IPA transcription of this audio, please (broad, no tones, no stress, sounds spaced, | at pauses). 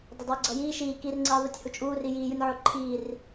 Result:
dˤ ʌ dˤ uː ɡ͡ǀ ʌ j iː ʃ iː k i r ŋ͡ǀ iː ðˤ o tʲ h u t͡ʃʼ uː r i j iː j u nʲ ʕ o ǃʰ iː r